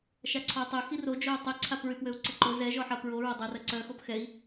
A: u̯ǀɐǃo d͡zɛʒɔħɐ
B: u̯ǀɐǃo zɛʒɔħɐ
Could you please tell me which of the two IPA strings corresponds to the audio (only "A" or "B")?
B